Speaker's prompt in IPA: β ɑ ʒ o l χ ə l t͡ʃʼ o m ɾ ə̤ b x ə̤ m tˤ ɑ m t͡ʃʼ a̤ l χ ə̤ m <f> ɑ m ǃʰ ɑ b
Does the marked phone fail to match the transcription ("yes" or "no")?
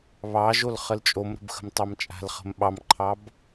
yes